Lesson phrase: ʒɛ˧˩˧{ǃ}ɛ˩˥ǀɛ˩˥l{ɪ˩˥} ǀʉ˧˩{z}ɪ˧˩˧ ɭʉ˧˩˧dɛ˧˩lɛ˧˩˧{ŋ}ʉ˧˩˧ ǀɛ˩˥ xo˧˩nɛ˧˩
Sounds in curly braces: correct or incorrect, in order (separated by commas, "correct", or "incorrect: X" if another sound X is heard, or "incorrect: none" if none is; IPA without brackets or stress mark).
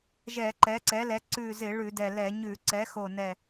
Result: correct, incorrect: ɛ˩˥, correct, incorrect: ɲ